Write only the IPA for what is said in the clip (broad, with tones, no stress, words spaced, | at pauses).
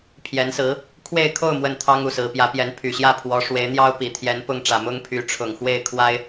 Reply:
pʰjɛ˧˥nsɹ̩˧˥ | kʰwe˥˧ɪ̯kʰo˥˧ʊ̯ mwə˥˩nt̪ʰɑ˥ŋ u˥˩sɹ̩˧˥pjä˧˥pjɛ˧˥n pʰy˨˩ɕjä˥˩pʰwɔ˧˥ ʂwe˧˥ɪ̯n̪jɑ˥ʊ̯ pi˨˩t̪ʰjɛ˧˥npʊ˥˩ŋ ʈ͡ʂä˨˩ mʊ˥ŋ pʰy˧˥ʈ͡ʂʰʊ˨˩ŋ xwe˥˩ɪ̯kʰwa˥ɪ̯